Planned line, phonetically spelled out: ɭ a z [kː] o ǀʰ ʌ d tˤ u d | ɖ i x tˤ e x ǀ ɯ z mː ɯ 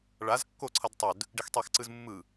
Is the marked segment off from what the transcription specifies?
no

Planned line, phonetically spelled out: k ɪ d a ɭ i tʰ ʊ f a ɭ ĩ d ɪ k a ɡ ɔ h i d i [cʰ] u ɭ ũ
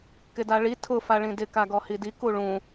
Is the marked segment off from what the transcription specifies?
yes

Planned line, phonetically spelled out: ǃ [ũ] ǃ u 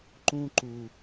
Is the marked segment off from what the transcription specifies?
no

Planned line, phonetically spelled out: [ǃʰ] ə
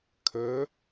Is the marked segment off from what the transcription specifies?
yes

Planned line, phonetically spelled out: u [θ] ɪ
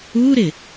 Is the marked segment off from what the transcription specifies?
yes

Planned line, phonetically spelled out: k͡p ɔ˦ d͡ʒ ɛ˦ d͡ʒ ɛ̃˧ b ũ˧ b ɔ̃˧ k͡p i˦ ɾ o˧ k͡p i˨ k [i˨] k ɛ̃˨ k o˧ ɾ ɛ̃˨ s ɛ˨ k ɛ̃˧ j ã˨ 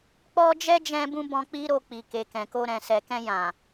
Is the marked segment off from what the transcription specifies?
yes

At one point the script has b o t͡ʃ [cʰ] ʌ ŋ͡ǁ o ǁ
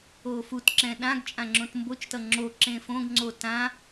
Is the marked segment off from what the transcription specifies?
yes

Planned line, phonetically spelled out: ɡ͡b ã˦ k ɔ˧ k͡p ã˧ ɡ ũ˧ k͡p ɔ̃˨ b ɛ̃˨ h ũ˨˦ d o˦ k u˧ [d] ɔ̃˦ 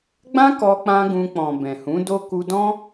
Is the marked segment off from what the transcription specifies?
no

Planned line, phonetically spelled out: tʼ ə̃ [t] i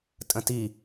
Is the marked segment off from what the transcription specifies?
no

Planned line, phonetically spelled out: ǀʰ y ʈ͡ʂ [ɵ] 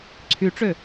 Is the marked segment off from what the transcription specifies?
yes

